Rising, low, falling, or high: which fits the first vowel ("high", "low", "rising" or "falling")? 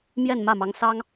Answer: falling